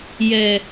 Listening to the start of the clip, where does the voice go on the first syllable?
low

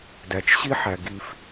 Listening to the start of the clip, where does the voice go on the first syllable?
low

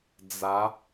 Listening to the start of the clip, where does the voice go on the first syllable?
rising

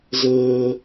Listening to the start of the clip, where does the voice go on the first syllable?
high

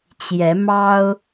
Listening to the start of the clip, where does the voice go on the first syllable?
rising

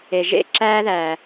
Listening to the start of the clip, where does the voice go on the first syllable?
low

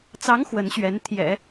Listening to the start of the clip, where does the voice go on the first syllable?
rising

